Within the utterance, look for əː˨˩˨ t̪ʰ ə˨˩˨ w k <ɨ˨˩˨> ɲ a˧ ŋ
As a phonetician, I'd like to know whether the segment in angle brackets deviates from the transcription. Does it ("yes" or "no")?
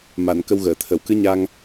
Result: yes